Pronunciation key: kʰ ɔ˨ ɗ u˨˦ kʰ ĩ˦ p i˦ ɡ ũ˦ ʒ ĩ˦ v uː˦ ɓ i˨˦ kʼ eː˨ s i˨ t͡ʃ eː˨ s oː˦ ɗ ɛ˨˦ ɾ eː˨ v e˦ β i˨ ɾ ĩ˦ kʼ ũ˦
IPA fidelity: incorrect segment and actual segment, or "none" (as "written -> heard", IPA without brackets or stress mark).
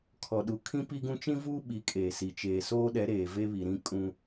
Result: ʒ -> t͡ʃ